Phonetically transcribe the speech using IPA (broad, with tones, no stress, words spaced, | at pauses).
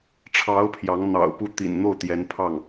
ʈ͡ʂʰɑ˧˥ʊ̯ pʰjɑ˧˥ŋ n̪ɑ̰˨˩ʊ̯pu˥˩ t̪ḭ˨˩nn̪o˥˩ʊ̯ t̪jɛ˧˥npʰɑ˥˩ŋ